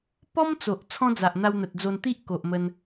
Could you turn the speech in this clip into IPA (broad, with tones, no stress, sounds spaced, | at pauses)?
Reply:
p ɔ˦ m t͡s o˨ ʔ t͡sʰ ɔ̃˦ d͡z a˨ ʔ n̪ a˧ w n̪ ə˨ t̚ d͡z o˧ n t̪ i˦ ʔ k o˨ ʔ m ə˧ n